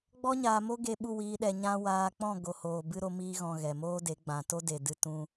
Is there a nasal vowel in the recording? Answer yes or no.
yes